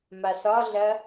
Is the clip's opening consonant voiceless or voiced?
voiced